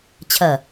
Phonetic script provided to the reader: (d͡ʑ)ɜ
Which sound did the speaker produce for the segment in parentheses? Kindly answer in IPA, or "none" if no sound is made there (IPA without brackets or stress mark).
t͡ɕʰ